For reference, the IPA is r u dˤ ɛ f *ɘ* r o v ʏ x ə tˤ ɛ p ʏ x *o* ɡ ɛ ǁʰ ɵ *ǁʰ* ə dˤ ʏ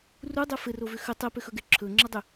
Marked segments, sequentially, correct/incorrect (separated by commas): correct, incorrect, incorrect